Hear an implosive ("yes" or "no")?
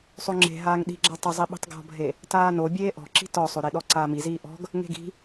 yes